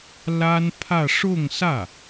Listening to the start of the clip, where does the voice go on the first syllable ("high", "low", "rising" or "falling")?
high